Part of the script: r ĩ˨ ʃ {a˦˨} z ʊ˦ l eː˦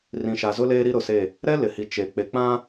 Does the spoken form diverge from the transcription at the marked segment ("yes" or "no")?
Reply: yes